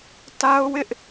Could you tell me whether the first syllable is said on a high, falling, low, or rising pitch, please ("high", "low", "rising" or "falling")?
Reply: high